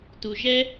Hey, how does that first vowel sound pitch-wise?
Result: low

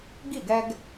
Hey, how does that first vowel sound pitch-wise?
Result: falling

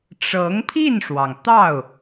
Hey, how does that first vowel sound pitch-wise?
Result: rising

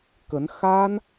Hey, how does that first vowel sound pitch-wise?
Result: rising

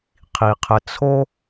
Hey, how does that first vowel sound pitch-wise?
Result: low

